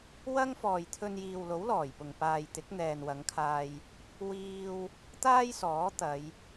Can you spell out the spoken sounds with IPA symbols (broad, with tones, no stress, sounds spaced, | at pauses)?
w ɐ˥ ŋ f ɔː˨ j t̪ʰ ɵ˧ n j iː˨ w l o˨˥ w l ɔː˨˩ j p ʊ˨ ŋ p aː˨ j t̪ ɪ˨˥ k̚ n̪ ɛː˨ n w ɐ˨˧ ŋ kʰ aː˧ j | w iː˧ w | t̪ aː˥ j s ɔː˨˥ t̪ ɐ˨˧ j